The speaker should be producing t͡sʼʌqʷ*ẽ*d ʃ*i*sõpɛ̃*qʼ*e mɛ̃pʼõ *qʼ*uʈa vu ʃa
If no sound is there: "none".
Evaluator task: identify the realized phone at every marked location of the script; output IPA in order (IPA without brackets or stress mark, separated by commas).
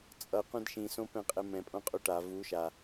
ẽ, ĩ, qʼ, qʼ